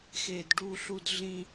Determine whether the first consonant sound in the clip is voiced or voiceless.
voiceless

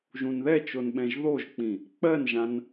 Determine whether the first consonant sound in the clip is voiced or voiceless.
voiced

